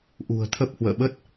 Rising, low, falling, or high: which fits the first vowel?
low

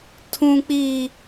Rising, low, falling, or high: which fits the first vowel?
high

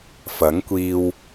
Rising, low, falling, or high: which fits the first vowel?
rising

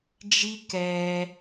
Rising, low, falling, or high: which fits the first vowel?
high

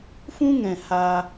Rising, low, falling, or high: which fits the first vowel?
high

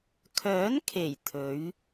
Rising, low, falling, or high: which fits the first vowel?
rising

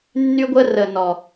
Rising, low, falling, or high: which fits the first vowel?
high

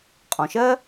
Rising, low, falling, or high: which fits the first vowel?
low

